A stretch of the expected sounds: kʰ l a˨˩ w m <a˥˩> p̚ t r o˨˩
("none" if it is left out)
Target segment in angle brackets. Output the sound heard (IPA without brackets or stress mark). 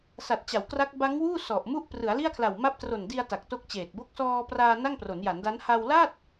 a˦˥